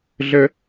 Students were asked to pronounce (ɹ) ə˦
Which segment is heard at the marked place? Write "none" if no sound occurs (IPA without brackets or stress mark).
ɮ